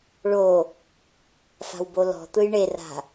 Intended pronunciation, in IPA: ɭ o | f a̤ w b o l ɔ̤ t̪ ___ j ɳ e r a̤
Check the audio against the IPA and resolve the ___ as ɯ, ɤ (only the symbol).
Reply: ɯ